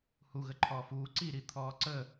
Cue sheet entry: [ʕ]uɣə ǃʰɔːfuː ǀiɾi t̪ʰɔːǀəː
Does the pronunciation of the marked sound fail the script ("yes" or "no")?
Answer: yes